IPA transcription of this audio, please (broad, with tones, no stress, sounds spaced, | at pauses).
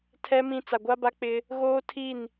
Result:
tʰ ɛ˦ m ĩ˦ t͡s a˨ ɡʷ a˦ b a˦ k͡p ɪ˦ | ɣ oː˦ tʰ i˦˨ n